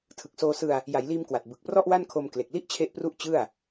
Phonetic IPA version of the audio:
tʰɯ˨˩k̚soː˧sɯ˧a̯ | ja˩˦jliː˧mkwa˨˩t̚ bɯ˨˩k̚prɔ˥˩ʔwa˥˩nkʰo˧m kle˨˩k̚li˥˩ʔt͡ɕʰe˦˥ʔpru˦˥ʔ t͡ɕɯ˥˩a̯

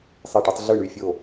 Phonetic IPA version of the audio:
sˤe˥˧ʈi˥tˤ ɮɯ˥˧ɳy˥˧ fʲo˥˧

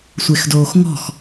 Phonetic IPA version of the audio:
sʷexdoːxŋɔ̤x

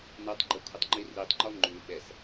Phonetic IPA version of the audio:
natˤɡ͡ǃə kʷʰətˤŋ͡ǃiritˤŋ͡ǃɔ ŋ͡ǃʉ ɓɛs

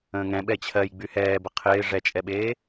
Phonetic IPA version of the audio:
ə̃ːŋɛ̃ ɓɛt͡ɕʰɜj ɡ͡byhɛːbə qʰɪː ʐɛt͡ʃʼɛɓeː

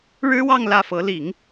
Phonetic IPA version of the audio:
ɻɻ̩˥wɑ˥˧ŋ lä˥˩fɤ˧˥ li˨˩˦ŋ

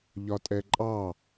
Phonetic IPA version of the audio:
ʎɒtʼɛǃʼɑ

